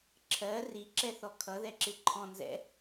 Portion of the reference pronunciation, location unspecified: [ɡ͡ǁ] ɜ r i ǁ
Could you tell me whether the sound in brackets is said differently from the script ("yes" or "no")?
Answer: yes